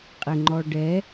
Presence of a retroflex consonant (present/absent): present